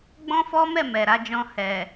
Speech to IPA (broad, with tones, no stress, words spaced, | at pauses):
ɡ͡bɔ̃˦fɔ˦mɛ˦˨ mɛ˨ɾa˨˦d͡ʒɔ̃˧ hɛ˨